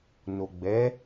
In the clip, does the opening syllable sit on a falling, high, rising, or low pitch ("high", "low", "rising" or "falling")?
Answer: low